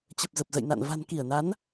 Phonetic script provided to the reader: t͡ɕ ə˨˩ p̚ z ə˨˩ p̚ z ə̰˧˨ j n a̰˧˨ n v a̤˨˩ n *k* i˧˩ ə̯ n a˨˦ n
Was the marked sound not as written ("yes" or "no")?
no